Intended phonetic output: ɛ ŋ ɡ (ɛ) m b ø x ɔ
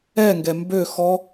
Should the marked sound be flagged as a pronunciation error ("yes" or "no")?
no